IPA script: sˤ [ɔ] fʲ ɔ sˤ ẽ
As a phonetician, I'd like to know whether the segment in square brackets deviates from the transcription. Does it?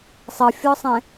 yes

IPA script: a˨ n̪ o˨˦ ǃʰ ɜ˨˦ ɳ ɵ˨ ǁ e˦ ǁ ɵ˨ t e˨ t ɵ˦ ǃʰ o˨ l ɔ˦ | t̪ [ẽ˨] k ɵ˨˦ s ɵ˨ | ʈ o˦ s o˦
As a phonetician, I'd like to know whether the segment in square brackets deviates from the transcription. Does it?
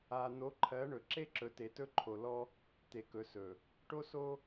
yes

